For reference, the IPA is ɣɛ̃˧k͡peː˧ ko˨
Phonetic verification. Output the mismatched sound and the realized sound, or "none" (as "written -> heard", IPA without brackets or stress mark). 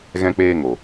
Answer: k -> ŋ